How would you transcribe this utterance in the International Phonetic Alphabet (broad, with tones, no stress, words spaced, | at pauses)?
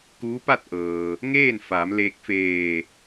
kuː˧˥pa˥˨t̚ʔɤː˩ | ŋeː˥˨nfaː˩˧mleː˧k̚ feː˧˩